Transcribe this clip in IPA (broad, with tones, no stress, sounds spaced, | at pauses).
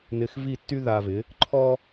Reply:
n ɪ˧ x v i˥˩ tː y˥ ð a˧ v ɪ˩˥ | ǃʰ ɔ˥